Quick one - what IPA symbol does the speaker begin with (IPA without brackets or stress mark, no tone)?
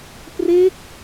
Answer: p